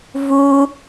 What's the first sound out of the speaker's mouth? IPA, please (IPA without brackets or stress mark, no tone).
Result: v